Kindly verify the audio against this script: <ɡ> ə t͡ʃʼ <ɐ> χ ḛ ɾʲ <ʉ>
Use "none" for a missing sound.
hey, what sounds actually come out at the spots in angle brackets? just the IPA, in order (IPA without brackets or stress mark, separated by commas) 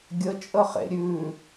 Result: ɡʲ, ə, ʉ